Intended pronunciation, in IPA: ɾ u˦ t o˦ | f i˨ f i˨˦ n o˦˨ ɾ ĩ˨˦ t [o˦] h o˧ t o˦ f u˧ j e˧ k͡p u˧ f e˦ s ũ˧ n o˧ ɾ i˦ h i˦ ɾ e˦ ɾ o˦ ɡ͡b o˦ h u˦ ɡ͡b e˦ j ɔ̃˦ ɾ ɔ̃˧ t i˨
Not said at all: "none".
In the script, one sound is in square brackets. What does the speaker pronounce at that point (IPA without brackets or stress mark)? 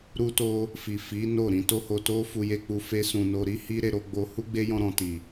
o˦